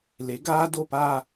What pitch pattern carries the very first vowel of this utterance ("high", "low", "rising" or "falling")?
rising